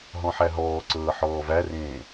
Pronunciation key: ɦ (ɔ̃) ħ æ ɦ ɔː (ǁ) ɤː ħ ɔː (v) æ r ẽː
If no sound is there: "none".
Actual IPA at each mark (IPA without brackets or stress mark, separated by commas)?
ɔ̃, ǀ, v